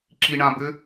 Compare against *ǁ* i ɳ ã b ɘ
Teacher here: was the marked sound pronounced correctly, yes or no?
yes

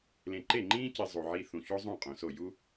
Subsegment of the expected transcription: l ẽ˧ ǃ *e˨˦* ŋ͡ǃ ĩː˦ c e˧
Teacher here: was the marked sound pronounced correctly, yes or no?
no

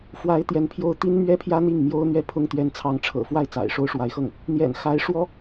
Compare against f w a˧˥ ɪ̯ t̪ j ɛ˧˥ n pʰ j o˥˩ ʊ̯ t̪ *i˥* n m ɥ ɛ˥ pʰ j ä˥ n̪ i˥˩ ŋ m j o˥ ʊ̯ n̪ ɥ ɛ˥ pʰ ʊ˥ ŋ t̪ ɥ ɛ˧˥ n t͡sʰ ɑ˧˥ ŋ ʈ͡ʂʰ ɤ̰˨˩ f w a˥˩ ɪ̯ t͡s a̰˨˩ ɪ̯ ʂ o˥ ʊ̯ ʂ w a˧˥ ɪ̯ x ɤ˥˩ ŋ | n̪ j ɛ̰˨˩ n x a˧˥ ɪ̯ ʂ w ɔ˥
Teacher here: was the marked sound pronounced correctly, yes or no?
yes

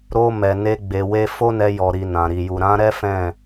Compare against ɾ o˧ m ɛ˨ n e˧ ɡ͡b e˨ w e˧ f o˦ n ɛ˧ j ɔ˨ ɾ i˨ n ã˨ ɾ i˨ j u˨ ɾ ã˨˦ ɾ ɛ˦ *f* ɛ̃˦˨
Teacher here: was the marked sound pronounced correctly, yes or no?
yes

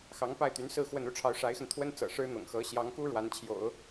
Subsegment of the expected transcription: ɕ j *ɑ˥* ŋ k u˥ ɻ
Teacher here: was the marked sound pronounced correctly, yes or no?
no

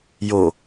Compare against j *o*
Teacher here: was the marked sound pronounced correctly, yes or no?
yes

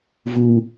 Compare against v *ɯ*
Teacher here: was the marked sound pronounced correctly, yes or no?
no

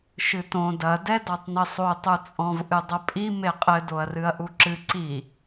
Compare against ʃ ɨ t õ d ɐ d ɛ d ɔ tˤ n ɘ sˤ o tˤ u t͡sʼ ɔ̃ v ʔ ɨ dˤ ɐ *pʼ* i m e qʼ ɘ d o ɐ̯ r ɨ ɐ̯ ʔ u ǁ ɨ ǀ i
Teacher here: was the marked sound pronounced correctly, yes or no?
yes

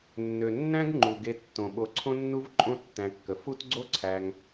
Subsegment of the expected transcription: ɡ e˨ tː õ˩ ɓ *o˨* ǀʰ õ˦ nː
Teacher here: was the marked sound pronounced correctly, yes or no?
yes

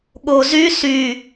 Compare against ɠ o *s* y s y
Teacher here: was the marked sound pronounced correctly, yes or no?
no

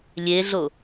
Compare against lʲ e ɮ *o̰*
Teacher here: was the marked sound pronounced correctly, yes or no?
no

